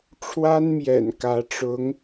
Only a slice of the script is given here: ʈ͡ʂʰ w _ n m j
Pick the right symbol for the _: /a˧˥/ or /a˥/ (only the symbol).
a˥